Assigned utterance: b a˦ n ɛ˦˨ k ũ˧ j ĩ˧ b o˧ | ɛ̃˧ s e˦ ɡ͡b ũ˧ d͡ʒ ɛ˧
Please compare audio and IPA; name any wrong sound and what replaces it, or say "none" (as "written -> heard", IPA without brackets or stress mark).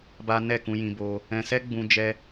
e˦ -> ɛ˦